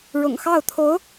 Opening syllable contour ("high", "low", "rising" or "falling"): low